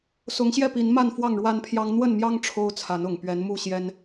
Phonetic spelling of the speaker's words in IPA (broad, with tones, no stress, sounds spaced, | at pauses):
s ʊ˨˦ ŋ ɕ j ɛ˥˨ p i˨˦ n m a˥˨ n f w ɑ˥˨ ŋ ɻ w a˦ n pʰ j ɑ˦ ŋ n̪ w ə˥˨ n m j ɑ˦ ŋ ʈ͡ʂʰ o˦ ʊ̯ t͡sʰ a˨˦ n ʊ˨˩ ŋ p ɥ ɛ˨˦ n m u˥˨ ɕ j ɛ˦ n